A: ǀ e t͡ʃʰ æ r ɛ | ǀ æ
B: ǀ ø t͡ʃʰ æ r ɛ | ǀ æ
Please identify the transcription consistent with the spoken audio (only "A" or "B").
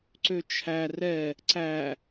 B